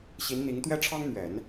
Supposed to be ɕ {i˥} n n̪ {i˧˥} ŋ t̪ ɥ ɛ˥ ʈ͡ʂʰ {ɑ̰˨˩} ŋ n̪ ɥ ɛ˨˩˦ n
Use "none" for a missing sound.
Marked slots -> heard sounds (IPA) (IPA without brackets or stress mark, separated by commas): i˧˥, i˧˥, ɑ˥